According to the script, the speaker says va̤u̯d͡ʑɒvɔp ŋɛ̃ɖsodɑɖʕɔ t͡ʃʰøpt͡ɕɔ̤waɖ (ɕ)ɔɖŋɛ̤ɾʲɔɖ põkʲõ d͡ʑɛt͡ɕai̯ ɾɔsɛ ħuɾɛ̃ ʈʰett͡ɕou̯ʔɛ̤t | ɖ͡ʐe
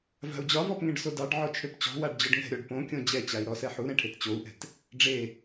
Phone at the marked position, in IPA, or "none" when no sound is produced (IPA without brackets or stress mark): d͡ʑ